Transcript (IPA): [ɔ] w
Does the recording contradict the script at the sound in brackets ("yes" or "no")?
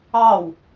yes